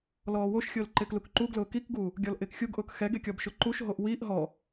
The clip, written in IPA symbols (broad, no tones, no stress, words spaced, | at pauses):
lɔːwoʃxʲʊːl ǃɪːklukǃuɡlʊː kikɡuː | ɡʲɔlʔɪːkxʲuɡʔʊːk xɛɡe kʲɔbʃʊǃuʃɦoʔ wiʔ ɦɔ